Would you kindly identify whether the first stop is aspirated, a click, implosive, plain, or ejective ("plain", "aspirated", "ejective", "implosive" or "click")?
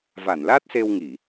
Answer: plain